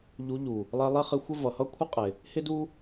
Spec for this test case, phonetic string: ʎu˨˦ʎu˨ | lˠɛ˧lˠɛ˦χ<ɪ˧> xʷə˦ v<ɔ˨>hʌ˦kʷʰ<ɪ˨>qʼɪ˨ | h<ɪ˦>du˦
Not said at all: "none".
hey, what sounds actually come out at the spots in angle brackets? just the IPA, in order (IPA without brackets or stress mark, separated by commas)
ɪ˧, ʌ˨, ɪ˦, ɪ˦